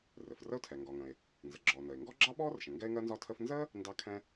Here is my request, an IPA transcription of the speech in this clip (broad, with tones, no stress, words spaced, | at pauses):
rɘ˩frə˥ʊ̯tʰɛ˩ ŋɡɒ˩ŋə̃˩ɪ̯ | nzə˩ɡ͡ǁɔː˩ nə˩ɪ̯ ŋɡɔ˥ɡ͡ǁɑ˥ɓɔː˥rʃə̃˩ ŋɡɛ˥ɪ̯ŋɜ˥nzɒ˥tʰə˥f nzə˥ | ndɑ˥ kʰɛ̃˥